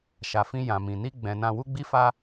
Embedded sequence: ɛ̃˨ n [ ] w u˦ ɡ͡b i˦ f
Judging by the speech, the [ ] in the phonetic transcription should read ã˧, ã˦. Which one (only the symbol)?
ã˧